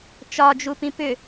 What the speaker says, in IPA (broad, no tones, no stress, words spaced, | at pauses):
t͡ʃɒd͡ʒupĩ pʏ